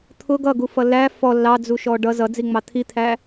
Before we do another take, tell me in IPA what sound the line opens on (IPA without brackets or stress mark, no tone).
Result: t̪ʰ